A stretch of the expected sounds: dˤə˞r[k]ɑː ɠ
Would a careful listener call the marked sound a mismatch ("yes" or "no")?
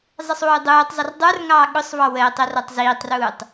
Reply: yes